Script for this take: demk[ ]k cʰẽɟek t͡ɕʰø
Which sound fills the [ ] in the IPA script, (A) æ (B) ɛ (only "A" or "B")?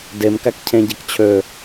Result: A